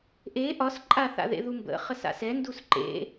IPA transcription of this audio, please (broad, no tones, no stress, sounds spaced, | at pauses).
ʔ e ʔ ɒ s ǃʼ a θ a̰ ð ḛ ð u m b ə̰ χ ə s a̰ s ɛ n d u s ǃ ḛ